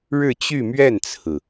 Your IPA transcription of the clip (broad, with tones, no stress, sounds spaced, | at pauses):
ɻ ɻ̩˥˧ t͡ɕ y˥˧ m ɥ ɛ˥˩ n t͡sʰ ɹ̩˩